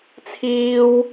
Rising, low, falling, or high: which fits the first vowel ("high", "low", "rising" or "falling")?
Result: high